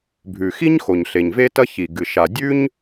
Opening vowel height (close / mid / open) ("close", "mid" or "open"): close